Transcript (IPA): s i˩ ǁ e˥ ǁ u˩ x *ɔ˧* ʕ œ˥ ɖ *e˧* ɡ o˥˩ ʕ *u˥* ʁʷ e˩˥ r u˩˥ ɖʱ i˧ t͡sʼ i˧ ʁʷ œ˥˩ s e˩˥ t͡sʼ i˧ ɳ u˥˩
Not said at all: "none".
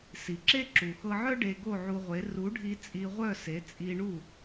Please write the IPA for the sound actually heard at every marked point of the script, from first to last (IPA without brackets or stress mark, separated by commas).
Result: ɤ˧, e˧, u˧